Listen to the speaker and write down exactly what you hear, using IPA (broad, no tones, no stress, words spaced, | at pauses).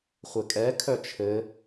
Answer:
χʷɘkʼɛ kʰœt͡ʃʰɘ